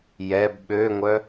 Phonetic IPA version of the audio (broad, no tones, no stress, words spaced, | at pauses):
jɛb ɓøŋʷœ